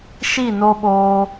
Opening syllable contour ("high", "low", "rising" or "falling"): falling